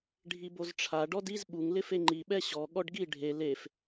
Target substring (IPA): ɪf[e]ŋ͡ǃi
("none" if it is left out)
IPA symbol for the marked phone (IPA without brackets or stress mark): e